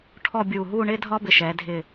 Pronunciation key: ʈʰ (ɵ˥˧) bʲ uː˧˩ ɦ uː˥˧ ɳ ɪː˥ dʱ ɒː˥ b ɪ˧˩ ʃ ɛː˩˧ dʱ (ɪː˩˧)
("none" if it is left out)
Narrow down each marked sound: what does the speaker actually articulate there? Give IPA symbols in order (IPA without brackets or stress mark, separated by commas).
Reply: ɔ˥˧, ɪː˧˩